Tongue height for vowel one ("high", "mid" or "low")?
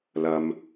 low